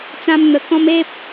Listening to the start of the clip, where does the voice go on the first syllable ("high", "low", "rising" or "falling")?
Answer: high